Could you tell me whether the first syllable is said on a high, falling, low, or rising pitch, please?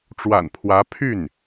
low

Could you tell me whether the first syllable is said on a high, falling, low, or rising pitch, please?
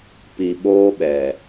low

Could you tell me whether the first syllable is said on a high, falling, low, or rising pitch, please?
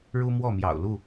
high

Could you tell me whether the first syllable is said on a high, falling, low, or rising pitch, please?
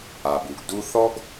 low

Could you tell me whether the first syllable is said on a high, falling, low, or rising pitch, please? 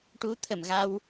rising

